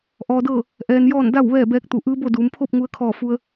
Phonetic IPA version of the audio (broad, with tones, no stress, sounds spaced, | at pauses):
ʔ ɔː˧ d ɤː˥˨ | ʔ ɛː˧ n j ɔː˥˨ n d a˥˨ w ʋ ɛː˥˨ b ɛː˧˥ k̚ t̪ u˩˧ ʔ ɯː˧˥ b o˥˨ d uː˩˧ m pʰ o˥˨ p̚ ŋ u˧ ə̯ kʰ ɔː˧˩ f u˧ ə̯